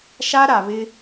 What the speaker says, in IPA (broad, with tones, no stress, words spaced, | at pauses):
ʃa˦ɾa˨βɪ˦